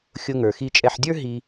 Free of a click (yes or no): yes